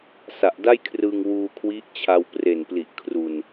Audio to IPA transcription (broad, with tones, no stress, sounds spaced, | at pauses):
s a˨˩ ʔ d a˥˩ j kʰ r ɯ˧ ŋ w uː˧ kʰ w i˦˥ ʔ t͡ɕʰ a˧ w p r e˨˩ n p l i˨˩ ʔ kʰ r u˧ n